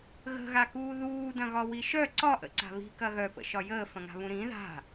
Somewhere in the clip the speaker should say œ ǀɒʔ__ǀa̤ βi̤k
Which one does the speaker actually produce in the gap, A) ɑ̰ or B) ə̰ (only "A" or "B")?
B